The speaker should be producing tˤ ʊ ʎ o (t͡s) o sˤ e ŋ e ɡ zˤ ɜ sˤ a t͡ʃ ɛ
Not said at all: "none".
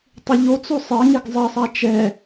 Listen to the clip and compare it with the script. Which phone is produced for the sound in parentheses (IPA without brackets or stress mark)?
t͡s